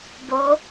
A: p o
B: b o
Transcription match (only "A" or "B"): B